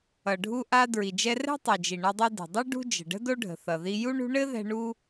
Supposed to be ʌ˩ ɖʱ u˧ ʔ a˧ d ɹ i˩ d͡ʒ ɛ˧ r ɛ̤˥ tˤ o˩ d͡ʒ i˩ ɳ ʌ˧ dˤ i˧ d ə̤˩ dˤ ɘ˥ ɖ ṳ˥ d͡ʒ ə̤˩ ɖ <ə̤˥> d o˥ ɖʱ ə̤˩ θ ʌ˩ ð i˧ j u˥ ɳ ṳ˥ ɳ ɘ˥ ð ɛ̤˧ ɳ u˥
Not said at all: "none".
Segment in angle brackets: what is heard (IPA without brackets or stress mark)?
ə̤˥